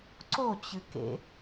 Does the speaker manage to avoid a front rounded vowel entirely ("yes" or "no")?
yes